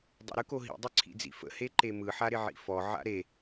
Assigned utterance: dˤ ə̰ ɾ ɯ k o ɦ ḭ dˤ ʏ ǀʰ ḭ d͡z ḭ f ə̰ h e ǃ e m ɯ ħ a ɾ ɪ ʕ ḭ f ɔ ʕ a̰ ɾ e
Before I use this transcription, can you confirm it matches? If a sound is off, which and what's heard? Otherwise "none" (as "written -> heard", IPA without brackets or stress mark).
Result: none